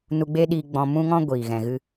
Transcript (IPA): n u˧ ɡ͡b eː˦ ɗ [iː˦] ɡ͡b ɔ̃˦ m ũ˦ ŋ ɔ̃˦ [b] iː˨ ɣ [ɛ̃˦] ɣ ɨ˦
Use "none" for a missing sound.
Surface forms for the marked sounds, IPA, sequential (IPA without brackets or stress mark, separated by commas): iː˧, ɡʷ, ɛ̃˧